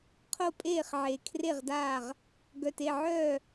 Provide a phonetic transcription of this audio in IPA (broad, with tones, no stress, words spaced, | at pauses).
qʰo˥˩pʼeː˥˩χʕe˨˩ kʰre˥˩ʁdaː˥˩ʁ | ɡœ˨˩te˥˩ʕœː˥˩